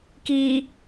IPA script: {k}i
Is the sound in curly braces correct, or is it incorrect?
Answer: correct